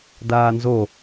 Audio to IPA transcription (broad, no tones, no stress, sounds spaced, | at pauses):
d aː n z o